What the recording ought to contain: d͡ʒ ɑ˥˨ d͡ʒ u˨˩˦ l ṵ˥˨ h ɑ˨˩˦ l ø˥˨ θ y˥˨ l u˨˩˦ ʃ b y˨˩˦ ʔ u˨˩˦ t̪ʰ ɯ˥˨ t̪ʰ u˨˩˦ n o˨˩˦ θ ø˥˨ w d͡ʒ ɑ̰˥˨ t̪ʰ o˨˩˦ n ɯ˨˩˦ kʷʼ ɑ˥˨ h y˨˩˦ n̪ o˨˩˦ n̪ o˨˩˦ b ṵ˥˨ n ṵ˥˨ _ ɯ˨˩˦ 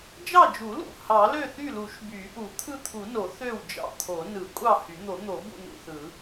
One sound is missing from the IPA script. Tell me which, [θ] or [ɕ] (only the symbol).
θ